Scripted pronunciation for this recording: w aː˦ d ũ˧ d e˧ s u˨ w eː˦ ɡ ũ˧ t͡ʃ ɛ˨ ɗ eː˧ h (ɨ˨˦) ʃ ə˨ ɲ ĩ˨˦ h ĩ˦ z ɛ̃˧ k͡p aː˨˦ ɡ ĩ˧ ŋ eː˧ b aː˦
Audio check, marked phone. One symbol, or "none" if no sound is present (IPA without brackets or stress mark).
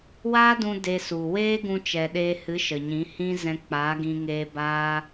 ɨ˨˦